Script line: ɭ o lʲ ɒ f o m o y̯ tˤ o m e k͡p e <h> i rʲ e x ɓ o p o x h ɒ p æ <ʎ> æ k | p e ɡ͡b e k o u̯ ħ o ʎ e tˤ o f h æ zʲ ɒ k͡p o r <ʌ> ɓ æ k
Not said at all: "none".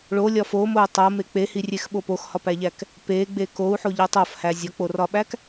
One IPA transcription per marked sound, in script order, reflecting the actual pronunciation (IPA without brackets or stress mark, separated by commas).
h, ʎ, ɒ